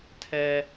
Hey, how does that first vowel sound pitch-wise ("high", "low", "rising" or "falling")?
high